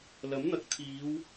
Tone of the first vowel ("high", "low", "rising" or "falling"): rising